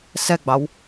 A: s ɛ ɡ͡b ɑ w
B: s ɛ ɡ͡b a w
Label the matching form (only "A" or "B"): A